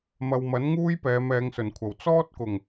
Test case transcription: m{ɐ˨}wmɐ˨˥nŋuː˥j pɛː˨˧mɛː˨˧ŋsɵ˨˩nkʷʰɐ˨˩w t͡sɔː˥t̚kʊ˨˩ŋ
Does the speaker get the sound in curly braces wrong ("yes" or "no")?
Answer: no